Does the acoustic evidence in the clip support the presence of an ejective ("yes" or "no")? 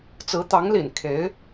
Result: no